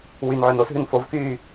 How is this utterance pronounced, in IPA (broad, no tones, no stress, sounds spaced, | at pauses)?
w y n ʕ ø n o s ɦ ʉ n f o v k yː